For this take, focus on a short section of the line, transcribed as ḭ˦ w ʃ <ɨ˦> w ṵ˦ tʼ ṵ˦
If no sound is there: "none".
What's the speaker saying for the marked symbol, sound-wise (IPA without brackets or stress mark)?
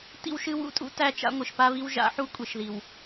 ɨ˦